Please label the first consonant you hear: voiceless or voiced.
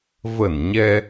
voiced